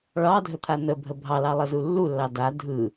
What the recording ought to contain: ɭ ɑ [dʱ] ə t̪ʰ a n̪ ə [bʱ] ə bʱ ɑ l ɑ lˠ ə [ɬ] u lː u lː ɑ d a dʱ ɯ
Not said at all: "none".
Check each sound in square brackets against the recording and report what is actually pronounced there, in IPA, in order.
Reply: dʱ, bʱ, z

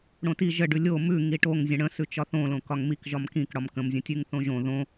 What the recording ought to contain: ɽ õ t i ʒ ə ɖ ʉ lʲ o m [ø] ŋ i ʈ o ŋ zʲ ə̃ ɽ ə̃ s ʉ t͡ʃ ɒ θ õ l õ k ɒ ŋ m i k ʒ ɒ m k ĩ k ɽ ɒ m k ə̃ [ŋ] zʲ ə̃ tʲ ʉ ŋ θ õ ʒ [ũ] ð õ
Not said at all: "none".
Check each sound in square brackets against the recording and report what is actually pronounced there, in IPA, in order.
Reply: ʉ, m, õ

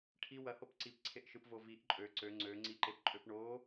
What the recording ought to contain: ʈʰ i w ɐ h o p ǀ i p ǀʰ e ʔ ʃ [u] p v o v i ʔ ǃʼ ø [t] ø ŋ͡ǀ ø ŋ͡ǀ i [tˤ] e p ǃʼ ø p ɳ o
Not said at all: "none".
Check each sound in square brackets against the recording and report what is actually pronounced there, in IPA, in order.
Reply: ɯ, ǀ, ǃ

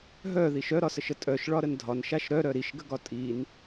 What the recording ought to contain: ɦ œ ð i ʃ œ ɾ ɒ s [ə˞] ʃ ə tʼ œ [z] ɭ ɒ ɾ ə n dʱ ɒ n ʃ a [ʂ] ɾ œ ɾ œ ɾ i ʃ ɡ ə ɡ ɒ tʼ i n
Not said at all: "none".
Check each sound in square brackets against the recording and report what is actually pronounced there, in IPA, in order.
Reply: ə, ʃ, ʃ

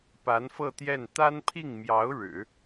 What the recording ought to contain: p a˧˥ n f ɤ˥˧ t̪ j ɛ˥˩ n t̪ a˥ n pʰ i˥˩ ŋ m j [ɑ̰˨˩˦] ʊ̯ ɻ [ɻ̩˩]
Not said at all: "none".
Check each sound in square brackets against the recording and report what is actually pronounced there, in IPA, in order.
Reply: ɑ˧˥, ɻ̩˨˩˦

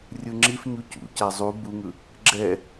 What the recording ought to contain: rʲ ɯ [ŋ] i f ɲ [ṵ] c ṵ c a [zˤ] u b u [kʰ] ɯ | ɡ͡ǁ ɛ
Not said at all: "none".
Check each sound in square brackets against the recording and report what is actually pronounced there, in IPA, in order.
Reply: ŋ͡ǁ, u, zˤ, ŋ

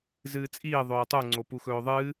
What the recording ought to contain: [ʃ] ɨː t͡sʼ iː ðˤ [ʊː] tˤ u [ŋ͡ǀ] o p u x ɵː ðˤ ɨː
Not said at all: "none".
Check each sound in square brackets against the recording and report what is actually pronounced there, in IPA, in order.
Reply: z, ɵː, ŋ͡ǀ

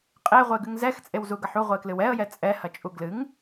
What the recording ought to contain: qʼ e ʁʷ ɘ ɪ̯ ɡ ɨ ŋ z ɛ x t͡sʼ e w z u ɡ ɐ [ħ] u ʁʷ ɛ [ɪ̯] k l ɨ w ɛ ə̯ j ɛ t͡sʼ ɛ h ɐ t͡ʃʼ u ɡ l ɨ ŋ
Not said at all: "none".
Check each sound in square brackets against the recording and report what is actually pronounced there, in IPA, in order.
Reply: ħ, ɪ̯

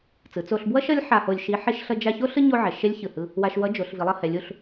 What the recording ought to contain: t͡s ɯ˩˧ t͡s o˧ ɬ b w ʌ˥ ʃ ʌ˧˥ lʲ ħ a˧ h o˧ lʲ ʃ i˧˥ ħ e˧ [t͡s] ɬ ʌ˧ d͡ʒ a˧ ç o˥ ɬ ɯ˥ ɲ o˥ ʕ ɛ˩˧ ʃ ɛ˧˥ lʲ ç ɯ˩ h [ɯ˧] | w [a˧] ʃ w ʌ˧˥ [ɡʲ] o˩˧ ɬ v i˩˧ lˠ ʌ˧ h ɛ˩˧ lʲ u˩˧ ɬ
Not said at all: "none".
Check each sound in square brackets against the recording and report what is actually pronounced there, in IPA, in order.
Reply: ʃ, ɯ˧, a˧, d͡ʒ

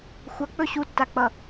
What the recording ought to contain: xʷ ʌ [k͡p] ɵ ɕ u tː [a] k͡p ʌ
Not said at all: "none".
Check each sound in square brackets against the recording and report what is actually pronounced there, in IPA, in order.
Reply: k͡p, a

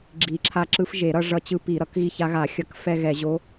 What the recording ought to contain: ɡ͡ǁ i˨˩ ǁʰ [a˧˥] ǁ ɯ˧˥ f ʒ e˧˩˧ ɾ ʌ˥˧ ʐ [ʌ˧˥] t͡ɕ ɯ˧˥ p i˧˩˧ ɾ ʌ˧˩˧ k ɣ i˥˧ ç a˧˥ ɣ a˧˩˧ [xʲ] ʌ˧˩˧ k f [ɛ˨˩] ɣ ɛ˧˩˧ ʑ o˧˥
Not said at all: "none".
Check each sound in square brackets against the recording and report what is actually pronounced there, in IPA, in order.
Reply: a˧˥, ʌ˧˥, xʲ, ɛ˥˧

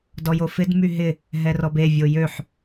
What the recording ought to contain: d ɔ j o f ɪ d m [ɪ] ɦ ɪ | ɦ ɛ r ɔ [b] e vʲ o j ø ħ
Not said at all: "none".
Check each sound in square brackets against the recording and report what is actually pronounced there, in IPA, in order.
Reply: y, b

